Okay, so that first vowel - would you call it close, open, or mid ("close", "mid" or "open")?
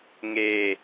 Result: mid